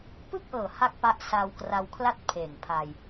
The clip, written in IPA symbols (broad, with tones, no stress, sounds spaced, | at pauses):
p ɯ˥˩ k̚ ʔ ɤː˨˩ h a˥˩ k̚ p a˦˥ ʔ s a˧ w k r a˧ w kʰ l a˥˩ t̚ pʰ eː˨˩ ŋ pʰ a˧ j